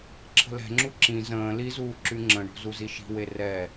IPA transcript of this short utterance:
ǁʰ ə̤ l ɛ̤ ŋ͡ǁ u ǁ ĩ z ə̃ː l i z uː ǁ y ŋ͡ǁ ə̃ ɳ o̤ z u z i ʃ i̤ w e r ɛ

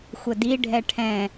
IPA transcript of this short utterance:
xʷ ə d i ɖʱ ɛ ʈʰ ɛ̃

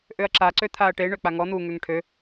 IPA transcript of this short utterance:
ʔ ø ɐ̯ ǁ a ǀ ø t̪ʰ aː ɐ̯ ʈ e ɳ ø k͡p a ŋ ɔ n̪ u ŋ ø ŋ ʈʰ ø

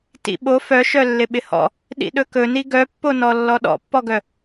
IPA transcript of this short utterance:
t ḭ ɓ o f œ ʃ œ lː ɪ ɓ ɪ h ɔ̰ | ɗ ḭ ɗ ɵ k ɵ n i ɡ œ pː o n ɔ lː ɔ ɗ ɔ̰ pː ɔ ɡ œ

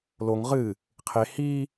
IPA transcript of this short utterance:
l o ŋ ʁ ɨ | qʰ e h i

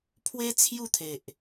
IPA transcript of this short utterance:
pʰ w e˦ t͡sʰ j u˥˧ t̪ʰ e˨ ʔ

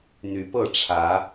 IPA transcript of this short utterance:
n̪ y˨˦ p ɤ˥˨ ʈ͡ʂʰ ä˨˦

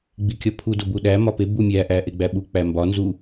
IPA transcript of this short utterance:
ɡ͡b i kʲ ɒ pʰ u d o b u ɗ æ m ɒ p e b u mʲ æ ʔ æ ʔ e ɡ͡b æ ɓ u k͡p æ m b ɒ n z u

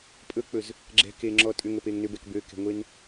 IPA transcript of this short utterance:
pʼ ɵ k͡p ɵ z | ɡ͡ǁ ɛ̤ k e ŋ͡ǁ ɔ tʼ ʏ ŋ ə p e ŋ n ʏ b ɛ k b ø k ɛ̤ ŋʷ e n

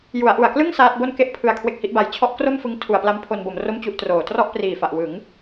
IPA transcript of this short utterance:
j u˩˦ a̯ ʔ u˨˩ a̯ k l ɯ˥˩ ŋ s aː˦˥ t̚ b o˥˩ n k e˥˩ ʔ pʰ ɯ˧ a̯ kʰ w e˦˥ k̚ h i˦˥ ʔ b a˧ j t͡ɕʰ ɔ˦˥ ʔ k r o˥˩ m f ɯ˦˥ ŋ tʰ u˨˩ a̯ p l a˦˥ m pʰ o˧ n b o˩˦ m r o˥˩ m t͡ɕ u˥˩ ʔ t r oː˨˩ t r ɔ˥˩ ʔ p r iː˨˩ f a˨˩ ʔ w ɯ˩˦ ŋ

